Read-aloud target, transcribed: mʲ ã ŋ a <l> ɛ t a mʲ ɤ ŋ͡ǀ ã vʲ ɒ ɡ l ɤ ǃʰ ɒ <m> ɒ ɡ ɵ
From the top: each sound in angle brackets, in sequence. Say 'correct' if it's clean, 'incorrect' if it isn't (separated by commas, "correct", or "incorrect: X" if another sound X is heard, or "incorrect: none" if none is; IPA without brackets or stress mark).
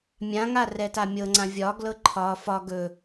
incorrect: r, incorrect: f